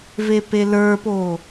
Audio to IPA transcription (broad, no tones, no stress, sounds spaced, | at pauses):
v e p e l ə˞ p o